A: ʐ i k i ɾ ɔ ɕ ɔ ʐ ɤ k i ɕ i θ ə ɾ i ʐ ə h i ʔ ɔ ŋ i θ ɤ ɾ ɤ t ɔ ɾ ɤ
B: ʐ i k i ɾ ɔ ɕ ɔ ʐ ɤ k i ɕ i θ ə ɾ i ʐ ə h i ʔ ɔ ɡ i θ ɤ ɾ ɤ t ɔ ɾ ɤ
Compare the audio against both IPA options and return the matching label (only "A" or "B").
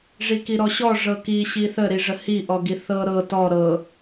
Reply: B